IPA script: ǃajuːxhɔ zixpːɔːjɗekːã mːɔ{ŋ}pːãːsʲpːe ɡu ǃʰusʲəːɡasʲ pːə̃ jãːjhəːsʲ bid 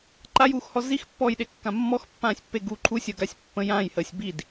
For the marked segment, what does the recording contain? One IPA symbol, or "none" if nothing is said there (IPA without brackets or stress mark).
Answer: x